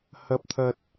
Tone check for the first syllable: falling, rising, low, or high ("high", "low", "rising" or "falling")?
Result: low